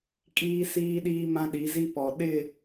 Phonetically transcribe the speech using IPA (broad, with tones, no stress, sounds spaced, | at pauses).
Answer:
kʼ iː˦ s iː˦ ɗ iː˦ m ã˦ ɗ i˨˦ z i˦ p ɔ˨ ɗ ɪ˦˨